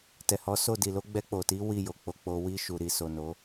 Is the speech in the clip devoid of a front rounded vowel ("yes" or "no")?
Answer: yes